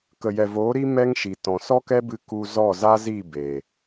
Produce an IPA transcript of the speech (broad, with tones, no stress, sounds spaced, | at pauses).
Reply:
k ə˨ j ɛ˨ v oː˨˦ ɾ i˦ m ɛ˦ ŋ ʃ i˨ t ɔ̃˨ s ɔ˦ k ɛ˦ b ɨ˧ k u˧ z ɔ˦˨ z a˦ z i˦˨ b eː˨